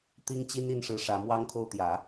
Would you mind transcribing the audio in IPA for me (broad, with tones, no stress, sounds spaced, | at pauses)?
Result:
t̪ i˥ ŋ t͡ɕ i˥ n i˥˩ n ʂ ɻ̩˧˥ ʂ ä˧˥ m w ɑ˥ ŋ kʰ o˥˩ ʊ̯ t̪ j ä˨˩˦